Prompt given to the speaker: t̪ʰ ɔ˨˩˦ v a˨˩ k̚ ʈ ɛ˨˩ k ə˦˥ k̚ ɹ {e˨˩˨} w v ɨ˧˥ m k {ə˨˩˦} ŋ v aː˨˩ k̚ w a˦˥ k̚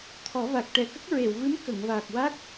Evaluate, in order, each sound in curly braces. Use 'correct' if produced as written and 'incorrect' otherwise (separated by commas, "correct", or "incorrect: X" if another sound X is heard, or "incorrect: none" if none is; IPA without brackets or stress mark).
correct, incorrect: ə˨˩˨